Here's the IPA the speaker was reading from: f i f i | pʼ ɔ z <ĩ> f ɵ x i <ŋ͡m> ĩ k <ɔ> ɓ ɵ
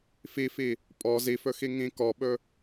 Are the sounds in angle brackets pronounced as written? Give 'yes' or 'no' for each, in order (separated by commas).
no, no, yes